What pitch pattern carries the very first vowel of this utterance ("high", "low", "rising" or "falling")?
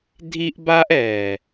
high